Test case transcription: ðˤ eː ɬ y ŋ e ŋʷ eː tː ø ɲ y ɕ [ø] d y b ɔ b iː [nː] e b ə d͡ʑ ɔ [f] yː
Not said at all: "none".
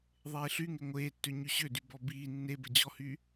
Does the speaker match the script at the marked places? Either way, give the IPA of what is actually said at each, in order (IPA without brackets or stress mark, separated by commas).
ø, nː, h